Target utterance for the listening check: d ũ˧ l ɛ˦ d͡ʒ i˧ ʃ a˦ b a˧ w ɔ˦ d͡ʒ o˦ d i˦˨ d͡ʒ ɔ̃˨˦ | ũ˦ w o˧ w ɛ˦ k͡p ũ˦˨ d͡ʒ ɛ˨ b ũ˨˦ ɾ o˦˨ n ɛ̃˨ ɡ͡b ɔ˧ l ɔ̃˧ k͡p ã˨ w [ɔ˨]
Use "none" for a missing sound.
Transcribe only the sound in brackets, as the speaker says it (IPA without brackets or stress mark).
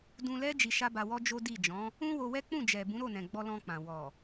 ɔ˨